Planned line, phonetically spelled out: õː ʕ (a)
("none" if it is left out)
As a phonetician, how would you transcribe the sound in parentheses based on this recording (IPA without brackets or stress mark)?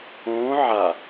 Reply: a